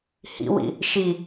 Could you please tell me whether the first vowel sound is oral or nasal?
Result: oral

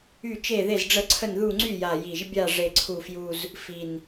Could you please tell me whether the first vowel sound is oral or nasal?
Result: oral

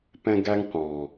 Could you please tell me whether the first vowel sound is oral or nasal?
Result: nasal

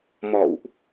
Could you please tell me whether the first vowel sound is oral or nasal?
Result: oral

